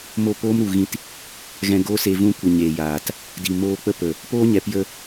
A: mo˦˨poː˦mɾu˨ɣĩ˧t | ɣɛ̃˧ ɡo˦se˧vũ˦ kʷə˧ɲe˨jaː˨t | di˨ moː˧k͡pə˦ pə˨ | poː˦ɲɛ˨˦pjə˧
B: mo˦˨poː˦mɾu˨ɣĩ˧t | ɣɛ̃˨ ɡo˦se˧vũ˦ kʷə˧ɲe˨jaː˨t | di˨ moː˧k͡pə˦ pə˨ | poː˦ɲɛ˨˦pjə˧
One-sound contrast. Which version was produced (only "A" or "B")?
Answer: A